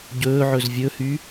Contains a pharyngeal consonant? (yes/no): yes